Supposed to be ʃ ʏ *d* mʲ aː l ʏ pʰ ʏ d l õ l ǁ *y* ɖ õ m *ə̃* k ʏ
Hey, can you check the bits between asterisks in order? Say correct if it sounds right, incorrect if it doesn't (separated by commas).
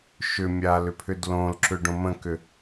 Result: incorrect, incorrect, correct